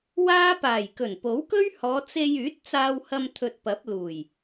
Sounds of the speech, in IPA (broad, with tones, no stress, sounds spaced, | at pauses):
w aː˥ p aː˨˩ j k ɵ˨˩ n p o˨˥ w k ɵ˥ ɥ h ɔː˨˧ t͡s e˧ j yː˨˥ t̚ t͡s aː˧ w h ɐ˧ m t̪ʰ ɵ˧ t̚ p ɐ˨˥ p̚ l uː˨˩ j